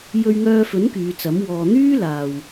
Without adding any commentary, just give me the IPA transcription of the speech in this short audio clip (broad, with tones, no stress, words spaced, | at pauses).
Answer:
jɵ˧ɥŋœː˧fɵ˨˥n kyː˨˧t͡sɐ˨˥m wɔː˨n̪yː˥laː˨w